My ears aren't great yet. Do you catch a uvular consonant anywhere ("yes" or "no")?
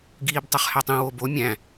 yes